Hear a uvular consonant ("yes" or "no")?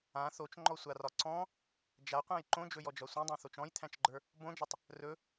yes